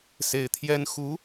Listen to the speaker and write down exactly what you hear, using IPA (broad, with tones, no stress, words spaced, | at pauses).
se˧˥ɪ̯t̪ʰjɛ˥n xu˧˥